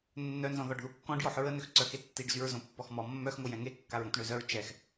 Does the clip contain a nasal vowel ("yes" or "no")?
yes